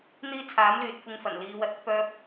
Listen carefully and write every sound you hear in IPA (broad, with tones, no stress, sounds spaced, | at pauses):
n̪ iː˥ t͡sʰ aː˨˥ m l yː˨ t̚ kʷ ɪ˧ ŋ f ɐ˨˩ n l iː˨˧ w ɐ˨˥ t̚ ɪ˨˥ k̚ p œː˥ p̚